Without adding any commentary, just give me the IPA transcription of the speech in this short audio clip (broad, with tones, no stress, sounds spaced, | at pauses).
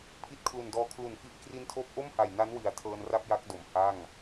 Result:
pʰ i˦˥ t̚ kʰ l u˨˩ n d ɔː˧ kʰ l u˨˩ n f i˦˥ ʔ k r i˧ n tʰ oː˦˥ p̚ ʔ o˥˩ m h a˨˩ j n a˦˥ n w i˨˩ a̯ tʰ ɤː˧ n r a˥˩ p̚ j a˦˥ k̚ d o˩˦ m h a˥˩ ŋ